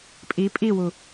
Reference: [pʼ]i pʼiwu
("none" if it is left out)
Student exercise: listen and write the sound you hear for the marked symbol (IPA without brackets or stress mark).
pʼ